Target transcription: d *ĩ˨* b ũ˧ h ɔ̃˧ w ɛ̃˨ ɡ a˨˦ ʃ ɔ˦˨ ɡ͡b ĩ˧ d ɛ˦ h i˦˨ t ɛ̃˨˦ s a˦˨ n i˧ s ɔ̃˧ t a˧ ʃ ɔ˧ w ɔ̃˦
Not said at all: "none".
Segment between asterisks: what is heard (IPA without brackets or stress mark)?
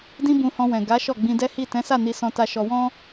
ĩ˦